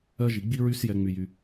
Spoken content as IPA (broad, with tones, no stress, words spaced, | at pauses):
ɜ˧ʒi˨ ɡ͡bi˦ɹy˦sjɛ˧ ŋ͡my˧jy˧